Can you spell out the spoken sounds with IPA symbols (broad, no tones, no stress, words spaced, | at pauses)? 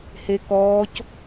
hekɔːc